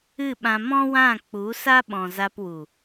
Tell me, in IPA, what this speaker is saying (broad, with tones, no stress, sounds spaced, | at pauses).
ɨ˦˨ ɓ ã˧ m ɔ̃˦ w ã˦˨ k͡p u˨˦ s a˦ ɓ ɔ̃˨ z a˧ p w u˨